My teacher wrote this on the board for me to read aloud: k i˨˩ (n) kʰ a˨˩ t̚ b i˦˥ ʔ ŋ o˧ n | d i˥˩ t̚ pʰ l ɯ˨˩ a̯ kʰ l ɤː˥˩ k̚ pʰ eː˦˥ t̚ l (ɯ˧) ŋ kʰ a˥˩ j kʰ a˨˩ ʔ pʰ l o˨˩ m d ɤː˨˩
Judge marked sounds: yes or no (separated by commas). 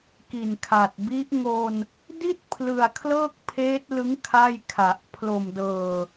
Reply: yes, no